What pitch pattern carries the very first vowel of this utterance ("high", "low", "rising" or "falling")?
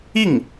falling